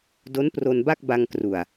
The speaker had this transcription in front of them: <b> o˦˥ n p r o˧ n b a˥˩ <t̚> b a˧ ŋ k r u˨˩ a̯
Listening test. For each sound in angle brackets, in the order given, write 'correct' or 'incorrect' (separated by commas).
incorrect, incorrect